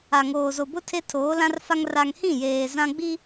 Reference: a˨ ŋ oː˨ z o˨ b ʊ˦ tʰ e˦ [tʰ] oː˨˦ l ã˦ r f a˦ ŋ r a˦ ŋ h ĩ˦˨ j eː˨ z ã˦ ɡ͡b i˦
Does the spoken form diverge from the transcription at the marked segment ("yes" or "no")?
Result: no